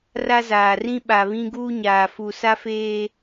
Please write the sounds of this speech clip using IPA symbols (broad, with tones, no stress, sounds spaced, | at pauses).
r a˦ z aː˨ r ĩ˦ ɓ a˨ β ĩ˦ ɡ uː˦ ɲ aː˨ f u˨ s a˦ f eː˦